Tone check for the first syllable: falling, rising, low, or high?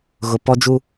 low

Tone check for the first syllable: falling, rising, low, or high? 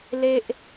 low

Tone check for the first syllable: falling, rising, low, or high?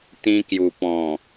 high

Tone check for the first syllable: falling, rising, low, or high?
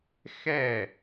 falling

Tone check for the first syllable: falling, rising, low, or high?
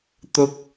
high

